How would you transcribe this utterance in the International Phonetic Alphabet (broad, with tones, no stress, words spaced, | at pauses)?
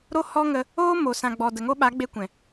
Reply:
ɾo˦ hɔ˦ŋə˧ | oː˦ mo˨ sã˨ɡ͡bɔ˨ də˨ŋo˦ɓa˨˦ ɡ͡be˦kʷɛ̃˨